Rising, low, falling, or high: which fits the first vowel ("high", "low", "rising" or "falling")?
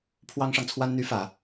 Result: high